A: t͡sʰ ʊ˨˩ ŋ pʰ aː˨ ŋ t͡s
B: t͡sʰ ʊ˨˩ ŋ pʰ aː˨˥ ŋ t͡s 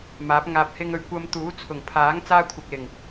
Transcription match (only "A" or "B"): B